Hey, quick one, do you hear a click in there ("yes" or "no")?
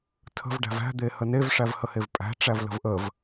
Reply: no